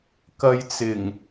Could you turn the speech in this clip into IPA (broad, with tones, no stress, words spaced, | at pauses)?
kɐ˧jt͡sɪ˨˩ŋ